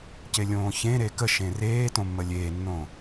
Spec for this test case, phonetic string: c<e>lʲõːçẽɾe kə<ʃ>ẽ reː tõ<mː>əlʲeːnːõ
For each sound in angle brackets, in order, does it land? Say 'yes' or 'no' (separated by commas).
yes, yes, yes